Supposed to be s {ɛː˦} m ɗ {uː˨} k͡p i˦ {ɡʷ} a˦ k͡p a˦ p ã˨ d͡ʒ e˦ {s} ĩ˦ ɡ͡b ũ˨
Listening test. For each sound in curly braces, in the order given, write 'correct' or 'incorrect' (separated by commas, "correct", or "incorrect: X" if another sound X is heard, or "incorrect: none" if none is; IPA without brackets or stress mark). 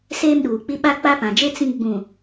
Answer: incorrect: eː˦, correct, incorrect: ɓ, incorrect: t͡s